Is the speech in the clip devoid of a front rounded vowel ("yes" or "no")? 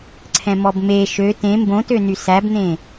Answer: no